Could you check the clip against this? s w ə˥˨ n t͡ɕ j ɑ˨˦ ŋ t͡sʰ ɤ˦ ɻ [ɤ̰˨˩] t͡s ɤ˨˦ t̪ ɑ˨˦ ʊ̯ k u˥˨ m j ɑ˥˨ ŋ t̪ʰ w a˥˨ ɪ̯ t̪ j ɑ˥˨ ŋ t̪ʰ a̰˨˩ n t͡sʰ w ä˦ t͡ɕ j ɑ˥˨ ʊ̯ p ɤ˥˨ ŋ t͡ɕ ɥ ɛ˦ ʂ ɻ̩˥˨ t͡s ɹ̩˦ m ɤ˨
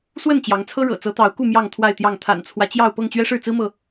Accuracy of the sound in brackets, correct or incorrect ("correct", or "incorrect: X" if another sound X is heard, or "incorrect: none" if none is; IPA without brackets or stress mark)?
correct